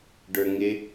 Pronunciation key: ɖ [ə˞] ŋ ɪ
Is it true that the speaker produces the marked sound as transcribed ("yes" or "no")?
yes